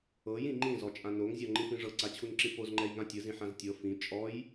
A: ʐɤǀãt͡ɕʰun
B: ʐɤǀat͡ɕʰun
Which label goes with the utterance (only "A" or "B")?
B